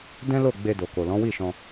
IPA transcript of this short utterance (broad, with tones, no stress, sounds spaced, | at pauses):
d ɛ̃˦ l o˦˨ ɡ͡b e˧ d o˨ k o˨ l ɔ̃˨˦ w i˦˨ ʃ ɔ̃˧